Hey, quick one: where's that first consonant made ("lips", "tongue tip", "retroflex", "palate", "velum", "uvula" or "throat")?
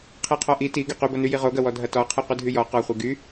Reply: uvula